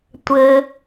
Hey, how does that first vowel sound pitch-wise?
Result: high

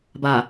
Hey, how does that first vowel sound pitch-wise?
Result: low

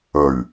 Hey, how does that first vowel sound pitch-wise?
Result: low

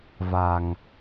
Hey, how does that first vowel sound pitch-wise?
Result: low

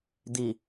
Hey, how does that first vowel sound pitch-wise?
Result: low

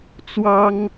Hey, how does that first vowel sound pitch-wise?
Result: high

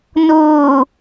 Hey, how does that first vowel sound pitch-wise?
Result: low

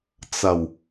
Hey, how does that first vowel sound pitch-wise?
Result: low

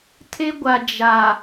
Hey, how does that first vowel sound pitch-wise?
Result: high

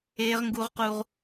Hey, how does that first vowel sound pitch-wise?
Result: high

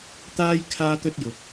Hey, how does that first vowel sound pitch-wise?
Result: high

